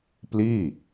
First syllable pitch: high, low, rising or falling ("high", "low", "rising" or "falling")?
falling